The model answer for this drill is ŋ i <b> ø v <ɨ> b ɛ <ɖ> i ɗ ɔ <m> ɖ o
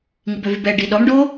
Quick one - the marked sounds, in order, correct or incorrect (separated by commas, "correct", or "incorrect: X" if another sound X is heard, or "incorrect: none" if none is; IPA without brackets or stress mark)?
correct, incorrect: y, correct, correct